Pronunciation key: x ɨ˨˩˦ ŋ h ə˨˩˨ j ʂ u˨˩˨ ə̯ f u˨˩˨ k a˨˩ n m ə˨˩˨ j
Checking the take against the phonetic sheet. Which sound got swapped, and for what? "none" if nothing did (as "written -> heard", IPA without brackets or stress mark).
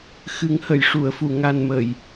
k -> ŋ